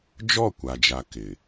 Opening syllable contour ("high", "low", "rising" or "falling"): falling